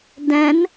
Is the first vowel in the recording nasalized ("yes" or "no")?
yes